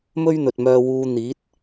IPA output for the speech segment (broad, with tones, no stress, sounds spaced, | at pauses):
m ɵ˥ ɥ n̪ ɵ˨ t̚ m œː˧ w uː˧ n̪ iː˨˥ t̚